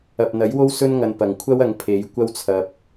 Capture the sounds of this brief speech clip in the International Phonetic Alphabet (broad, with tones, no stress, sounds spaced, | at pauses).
ɐ˨ p̚ n̪ ɐ˨˥ j w o˥ w s ɵ˥ n ŋ ɐ˧ n p ɐ˨ ŋ kʷʰ ɐ˥ w ɐ˨˧ ŋ pʰ e˨˧ j kʷ ɐ˥ w t͡sʰ ɐ˧ p̚